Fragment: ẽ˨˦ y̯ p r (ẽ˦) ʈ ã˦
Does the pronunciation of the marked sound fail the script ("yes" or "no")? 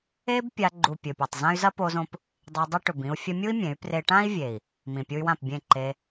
yes